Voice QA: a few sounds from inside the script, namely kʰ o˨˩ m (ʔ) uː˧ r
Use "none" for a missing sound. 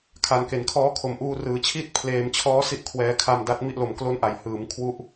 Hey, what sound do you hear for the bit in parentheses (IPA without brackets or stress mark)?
ʔ